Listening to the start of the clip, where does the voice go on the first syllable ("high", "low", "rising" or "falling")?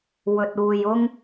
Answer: low